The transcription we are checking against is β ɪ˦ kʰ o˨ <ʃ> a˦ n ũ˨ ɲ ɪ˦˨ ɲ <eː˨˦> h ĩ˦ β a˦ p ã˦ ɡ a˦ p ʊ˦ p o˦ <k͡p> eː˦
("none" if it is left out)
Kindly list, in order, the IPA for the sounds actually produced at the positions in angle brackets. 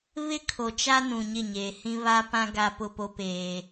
t͡ʃ, eː˨, p

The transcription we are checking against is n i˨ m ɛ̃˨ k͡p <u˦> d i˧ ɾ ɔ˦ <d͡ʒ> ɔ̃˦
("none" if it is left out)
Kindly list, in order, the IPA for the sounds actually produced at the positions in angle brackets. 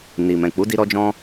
u˨˦, d͡ʒ

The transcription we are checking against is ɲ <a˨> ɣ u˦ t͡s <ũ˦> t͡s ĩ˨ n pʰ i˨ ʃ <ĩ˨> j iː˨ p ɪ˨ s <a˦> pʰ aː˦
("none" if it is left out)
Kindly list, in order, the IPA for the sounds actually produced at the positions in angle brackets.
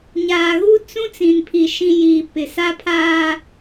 aː˨, ũ˦, ĩ˨, a˦

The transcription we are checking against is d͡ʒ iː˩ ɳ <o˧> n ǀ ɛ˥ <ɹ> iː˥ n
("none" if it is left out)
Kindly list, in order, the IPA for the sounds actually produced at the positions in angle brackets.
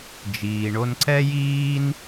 o˧, j

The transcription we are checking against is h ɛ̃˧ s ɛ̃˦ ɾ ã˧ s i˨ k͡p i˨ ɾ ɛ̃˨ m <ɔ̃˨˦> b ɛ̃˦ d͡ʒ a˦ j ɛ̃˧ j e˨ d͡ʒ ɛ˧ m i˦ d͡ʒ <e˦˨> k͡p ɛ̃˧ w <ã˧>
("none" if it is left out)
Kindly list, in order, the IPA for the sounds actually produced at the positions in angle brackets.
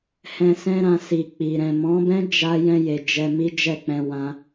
ɔ̃˨˦, ɛ˦˨, ã˧

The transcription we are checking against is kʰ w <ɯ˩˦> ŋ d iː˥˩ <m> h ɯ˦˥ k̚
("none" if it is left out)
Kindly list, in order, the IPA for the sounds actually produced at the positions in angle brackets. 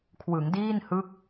ɯ˩˦, n

